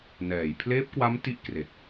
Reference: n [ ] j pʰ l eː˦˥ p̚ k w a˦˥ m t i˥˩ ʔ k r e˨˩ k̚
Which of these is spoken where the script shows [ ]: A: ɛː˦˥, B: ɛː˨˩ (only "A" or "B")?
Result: B